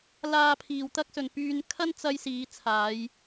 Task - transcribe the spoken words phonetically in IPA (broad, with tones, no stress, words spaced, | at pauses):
laː˧pʰiː˨wt̪ɐ˥k̚sɵ˨n pyː˧n kʰɐ˥nt͡sɐ˧j siː˨˧t͡sʰaː˨˧j